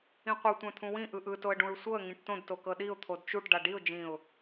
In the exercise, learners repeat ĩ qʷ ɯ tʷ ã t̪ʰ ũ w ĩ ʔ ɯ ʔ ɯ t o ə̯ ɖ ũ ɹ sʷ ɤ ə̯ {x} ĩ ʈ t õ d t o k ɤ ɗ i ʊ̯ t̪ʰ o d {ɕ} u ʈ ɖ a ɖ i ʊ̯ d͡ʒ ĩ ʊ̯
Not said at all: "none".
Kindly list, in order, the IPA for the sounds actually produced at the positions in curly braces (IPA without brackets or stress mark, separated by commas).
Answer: ŋ, t͡ʃ